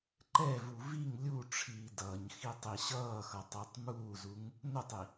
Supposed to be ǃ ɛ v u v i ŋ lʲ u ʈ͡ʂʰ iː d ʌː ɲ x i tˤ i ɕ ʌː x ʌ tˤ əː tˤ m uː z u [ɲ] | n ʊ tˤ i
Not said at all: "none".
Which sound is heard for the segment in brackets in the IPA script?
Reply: ŋ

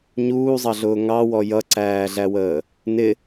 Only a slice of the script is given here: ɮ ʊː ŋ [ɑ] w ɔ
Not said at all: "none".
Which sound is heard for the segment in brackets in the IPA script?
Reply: ɑ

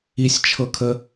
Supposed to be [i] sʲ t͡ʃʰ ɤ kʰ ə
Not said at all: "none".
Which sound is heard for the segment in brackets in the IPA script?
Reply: i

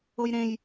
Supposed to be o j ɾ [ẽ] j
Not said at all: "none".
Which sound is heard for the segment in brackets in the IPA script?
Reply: ẽ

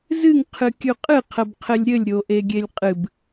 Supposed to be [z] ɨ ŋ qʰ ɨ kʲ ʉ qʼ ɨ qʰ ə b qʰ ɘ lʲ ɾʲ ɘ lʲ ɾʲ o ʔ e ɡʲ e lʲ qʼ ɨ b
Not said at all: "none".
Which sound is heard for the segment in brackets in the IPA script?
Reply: z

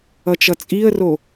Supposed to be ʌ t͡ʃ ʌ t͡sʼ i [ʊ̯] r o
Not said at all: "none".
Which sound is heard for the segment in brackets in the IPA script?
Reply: ə̯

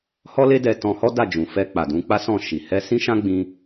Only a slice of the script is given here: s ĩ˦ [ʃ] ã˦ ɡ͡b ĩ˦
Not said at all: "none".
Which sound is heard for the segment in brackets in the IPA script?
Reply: ʃ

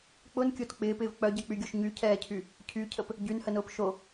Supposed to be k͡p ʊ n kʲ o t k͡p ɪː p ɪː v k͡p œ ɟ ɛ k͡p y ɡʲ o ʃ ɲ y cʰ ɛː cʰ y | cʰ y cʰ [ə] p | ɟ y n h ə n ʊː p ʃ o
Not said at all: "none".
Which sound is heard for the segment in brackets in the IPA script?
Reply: ə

